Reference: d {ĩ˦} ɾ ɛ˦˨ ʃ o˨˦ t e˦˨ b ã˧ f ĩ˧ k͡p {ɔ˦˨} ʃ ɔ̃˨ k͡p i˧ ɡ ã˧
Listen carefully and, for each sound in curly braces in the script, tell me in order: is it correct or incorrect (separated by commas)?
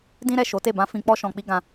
correct, incorrect